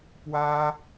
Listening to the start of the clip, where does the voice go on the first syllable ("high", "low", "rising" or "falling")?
high